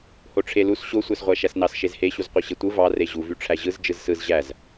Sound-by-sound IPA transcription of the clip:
h o ʈ͡ʂʰ e l u s ɕ o sʷ æ s ʁʷ æ ʃ æ s n ɑ s ʃ e z h e ɕ u z qʷ ɯ ɕ e tʷ ɯ v ɑ r e ʑ u v y ʈ͡ʂʰ æ ʑ ɯ z d͡ʒ ɯ z s ɯ z ʑ æ z

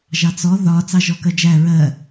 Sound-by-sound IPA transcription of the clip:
ʒ ɑ t͡s ɔ ð ɒ t͡s ɑ ʒ ɔ k ɜ d͡ʒ æ ɹ ɜ

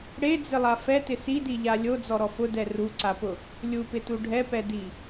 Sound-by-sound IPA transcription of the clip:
ɽ e d͡z ɪ lˠ a f ɛ t ɪ s i d i ʎ a lʲ o d͡z ɔ ɾ ɔ f ʊ d ɛ r u ǀ a p ʊ | lʲ u p ɪ t u ɖʱ ɛ p ɛ d i

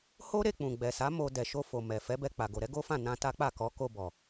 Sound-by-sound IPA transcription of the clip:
h o˦ ɾ e˧ k͡p ũ˨ ɡ͡b ɛ˨ s a˨˦ m o˧ d ɛ˨ ʃ o˧ f o˨ m ɛ˨ f ɛ˨˦ b ɛ˧ k͡p a˨ ɡ o˨ ɾ ɛ˨˦ ɡ o˦ f ã˦˨ n ã˧ t a˦ k͡p a˦˨ k ɔ˨˦ k o˧ b ɔ˨

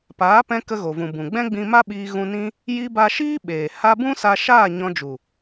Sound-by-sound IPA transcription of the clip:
p aː˨˦ p ɛ̃˧ k ə˧ ɣ o˨ v ũ˨ b ũ˨ ɡ͡b ɛ̃˦ ɡ͡b ĩ˧ m a˦ ɓ iː˧ ɣ ũ˧ n ĩ˦ | j i˧ b a˧ ʃ iː˦ ɓ eː˨ h a˧ b ũ˦ s a˧ ʃ aː˦˨ ɲ ɔ̃˧ d͡ʒ u˨

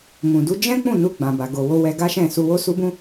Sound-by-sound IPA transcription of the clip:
m ũ˨ d u˨˦ d͡ʒ ɛ̃˦ k͡p ũ˦˨ n u˧ ɡ͡b ã˨ b a˨ ɡ o˨ w o˧ w ɛ˧ ɡ a˦ ʃ ɛ̃˦˨ s u˧ w o˦ s u˦ b ũ˦

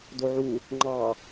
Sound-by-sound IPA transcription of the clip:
d o ʕ u | ŋ͡ǃ ɑ

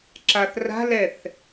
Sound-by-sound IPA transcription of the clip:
ǁ a θ r a̤ l ɛ θ

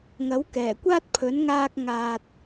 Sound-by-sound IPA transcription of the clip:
ŋ ɐ˨˥ w k ɛː˨˩ kʷ aː˥ t̚ pʰ ɵ˨˥ n ŋ aː˧ k̚ ŋ aː˨ t̚

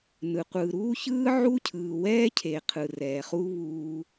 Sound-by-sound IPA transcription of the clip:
n ɯ˨ qʷ ɯː˨ ɾ uː˦ ç ɯː˦ ʕ u˦ cʰ ɯː˨ w ɛː˦ cʰ e˨ qʰ ɯ˨ r ɛː˨ χ u˦ β uː˦

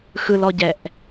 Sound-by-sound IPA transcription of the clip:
x ɯ l ɔ ɟ ɛ ʔ

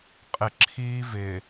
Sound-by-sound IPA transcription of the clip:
qʼ ɪ ǁʰ iː v ɪ

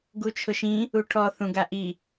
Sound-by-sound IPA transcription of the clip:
ɡ u t͡ʃʰ ʊ ʃ ĩ | u ʈʰ ɔ θ ũ ɡ a ʔ i

